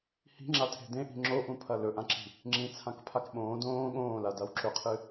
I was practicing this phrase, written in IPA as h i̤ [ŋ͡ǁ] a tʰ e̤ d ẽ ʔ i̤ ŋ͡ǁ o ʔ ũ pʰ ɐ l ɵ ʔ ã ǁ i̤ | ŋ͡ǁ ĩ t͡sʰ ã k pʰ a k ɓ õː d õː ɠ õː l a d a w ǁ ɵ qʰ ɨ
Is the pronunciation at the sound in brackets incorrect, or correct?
correct